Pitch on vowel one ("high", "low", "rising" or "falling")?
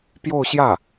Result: falling